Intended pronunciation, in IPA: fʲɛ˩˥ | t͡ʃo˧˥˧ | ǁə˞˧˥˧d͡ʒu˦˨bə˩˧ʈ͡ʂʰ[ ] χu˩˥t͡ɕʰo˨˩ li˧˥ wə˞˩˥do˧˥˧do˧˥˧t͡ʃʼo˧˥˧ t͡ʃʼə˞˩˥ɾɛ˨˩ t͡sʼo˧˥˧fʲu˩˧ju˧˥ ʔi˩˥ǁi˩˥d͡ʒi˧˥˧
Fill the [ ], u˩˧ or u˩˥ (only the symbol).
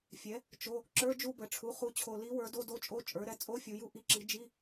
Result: u˩˥